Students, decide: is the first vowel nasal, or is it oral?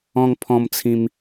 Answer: nasal